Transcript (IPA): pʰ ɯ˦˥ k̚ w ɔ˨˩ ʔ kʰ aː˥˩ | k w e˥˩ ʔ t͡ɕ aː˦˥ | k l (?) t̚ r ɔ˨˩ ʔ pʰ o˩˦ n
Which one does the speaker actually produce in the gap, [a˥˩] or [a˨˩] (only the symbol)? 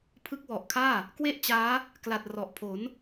a˨˩